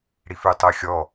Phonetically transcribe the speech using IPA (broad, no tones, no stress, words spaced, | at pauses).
ɽifʉtˤɤxʲɔ